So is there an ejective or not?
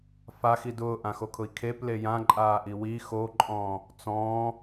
yes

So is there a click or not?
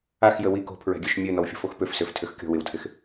no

